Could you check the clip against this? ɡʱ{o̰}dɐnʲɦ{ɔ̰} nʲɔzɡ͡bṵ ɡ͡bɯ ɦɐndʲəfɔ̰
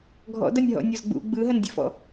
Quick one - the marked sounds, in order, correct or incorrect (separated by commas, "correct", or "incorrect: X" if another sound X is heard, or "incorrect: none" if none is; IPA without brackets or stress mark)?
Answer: incorrect: ɔ̰, correct